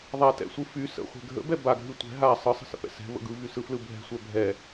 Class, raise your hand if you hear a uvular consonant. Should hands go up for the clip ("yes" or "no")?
yes